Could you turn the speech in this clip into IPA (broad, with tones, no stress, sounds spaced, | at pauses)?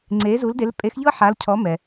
ŋ͡ǀ e˨˥ z u˨˥ l d e˨˥ l pʼ e˨˥ x ʎ ɤ˥ ħ a˨˥ l cʰ ɔ˨˥ m ɛ˩